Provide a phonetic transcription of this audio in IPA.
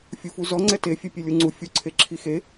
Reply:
fʲ u f u z ɔ ŋ͡ǀ ɛ t e fʲ ɛ pʲ e lʲ u ŋ͡ǀ u fʲ u ǀʰ e ǁʰ i x e

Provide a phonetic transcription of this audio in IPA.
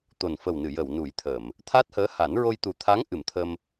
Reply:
t̪ o˨˩ n f ə˨˩ w n ɨ˨˩˨ j ə˨˩˨ w n u˨˩˦ j t̪ʰ ə˨˩˨ m | t̪ʰ a˦˥ t̚ h əː˧˥ h a˨˩˦ n ɹ o˧ j t̪ u˨˩ t̪ʰ a˧˥ ŋ ʔ ɨ˨˩˨ m t̪ʰ ə˧ m

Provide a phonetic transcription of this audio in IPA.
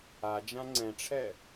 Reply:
a d͡ʒ ã ŋ͡ǀ ɛ̃ ʈ͡ʂʰ ɛ

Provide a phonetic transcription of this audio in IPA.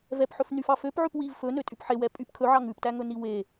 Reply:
v ɛ p ħ ɵ f n y f ɑ f ø p ʕ ʉ p w i v f ɵ n ø tʼ y p ħ e w ɛ pʼ y p kʰ ɵ ʕ ɑ ŋ ʉ p t æ ŋ ɵ n i w e

